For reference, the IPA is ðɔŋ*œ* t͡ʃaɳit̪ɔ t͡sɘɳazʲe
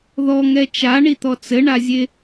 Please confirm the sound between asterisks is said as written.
no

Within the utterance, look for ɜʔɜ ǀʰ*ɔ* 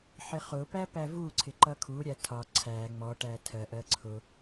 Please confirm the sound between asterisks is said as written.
no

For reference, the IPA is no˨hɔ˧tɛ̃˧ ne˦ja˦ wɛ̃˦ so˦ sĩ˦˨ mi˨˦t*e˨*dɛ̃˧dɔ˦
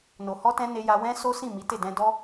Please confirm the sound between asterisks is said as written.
no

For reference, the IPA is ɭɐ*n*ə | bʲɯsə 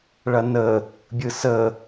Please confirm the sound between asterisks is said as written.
yes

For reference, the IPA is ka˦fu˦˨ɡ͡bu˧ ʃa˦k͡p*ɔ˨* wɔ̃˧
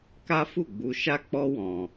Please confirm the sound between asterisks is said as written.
no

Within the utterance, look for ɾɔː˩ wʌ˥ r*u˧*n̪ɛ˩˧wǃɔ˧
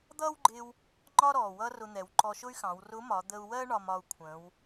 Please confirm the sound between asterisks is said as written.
no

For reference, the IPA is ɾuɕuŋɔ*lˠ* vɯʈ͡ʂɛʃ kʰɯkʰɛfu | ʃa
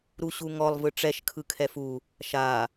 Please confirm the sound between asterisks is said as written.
yes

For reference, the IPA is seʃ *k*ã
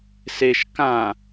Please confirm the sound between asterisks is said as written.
yes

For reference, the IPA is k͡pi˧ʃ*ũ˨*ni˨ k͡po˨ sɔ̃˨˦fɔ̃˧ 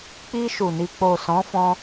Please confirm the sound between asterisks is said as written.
no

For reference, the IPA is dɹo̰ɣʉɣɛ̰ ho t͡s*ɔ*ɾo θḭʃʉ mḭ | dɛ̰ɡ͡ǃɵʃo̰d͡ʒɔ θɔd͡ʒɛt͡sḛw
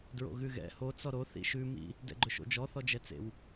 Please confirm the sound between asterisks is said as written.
yes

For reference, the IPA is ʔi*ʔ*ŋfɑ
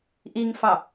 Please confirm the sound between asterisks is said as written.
no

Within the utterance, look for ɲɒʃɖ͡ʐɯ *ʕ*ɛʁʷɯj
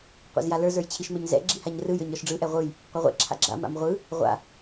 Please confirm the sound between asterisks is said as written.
no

